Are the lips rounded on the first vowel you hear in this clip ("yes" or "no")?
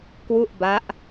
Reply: yes